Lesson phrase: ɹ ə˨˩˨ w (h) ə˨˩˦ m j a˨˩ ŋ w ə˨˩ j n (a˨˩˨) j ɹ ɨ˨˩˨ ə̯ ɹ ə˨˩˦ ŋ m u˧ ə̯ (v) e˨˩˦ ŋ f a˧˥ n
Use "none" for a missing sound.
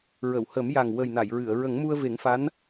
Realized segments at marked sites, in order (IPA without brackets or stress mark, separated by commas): h, a˨˩˨, v